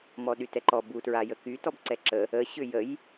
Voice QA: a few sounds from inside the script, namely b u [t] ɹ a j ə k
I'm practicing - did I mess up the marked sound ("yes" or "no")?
no